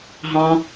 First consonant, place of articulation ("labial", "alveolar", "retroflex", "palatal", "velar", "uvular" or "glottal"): glottal